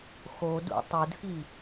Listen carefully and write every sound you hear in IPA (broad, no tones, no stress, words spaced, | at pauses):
xodṵ tˤudxi